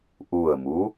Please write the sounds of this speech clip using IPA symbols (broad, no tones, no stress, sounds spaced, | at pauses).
ʔ u ə̯ m u